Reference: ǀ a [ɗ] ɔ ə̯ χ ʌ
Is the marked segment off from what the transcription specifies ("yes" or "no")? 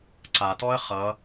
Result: yes